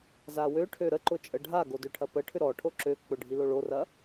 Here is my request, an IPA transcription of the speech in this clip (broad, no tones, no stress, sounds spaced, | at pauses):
z a w ø ʈʰ ø ɾ ə ǃ ʊ t͡ʃʼ ə ɖʱ a ɡ o d ø ʈʰ ɐ p ə ʈʰ ʏ ɾ ɔ ʈʰ o ǁ ø k͡p ʊ ɖʱ i l o ɭ o r ɐ